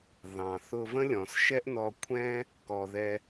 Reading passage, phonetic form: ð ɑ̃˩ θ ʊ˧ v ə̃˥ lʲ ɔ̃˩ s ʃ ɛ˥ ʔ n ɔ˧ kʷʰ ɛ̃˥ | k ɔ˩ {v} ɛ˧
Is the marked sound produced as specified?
no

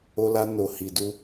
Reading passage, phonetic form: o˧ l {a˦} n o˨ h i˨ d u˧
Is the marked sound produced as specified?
no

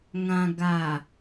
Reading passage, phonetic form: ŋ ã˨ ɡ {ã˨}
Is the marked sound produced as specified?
no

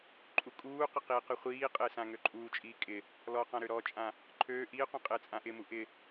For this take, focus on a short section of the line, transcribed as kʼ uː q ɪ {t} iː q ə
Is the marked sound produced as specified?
no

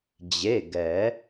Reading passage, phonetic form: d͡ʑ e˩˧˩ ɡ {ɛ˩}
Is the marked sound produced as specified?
no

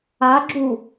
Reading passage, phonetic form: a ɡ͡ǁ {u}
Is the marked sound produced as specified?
yes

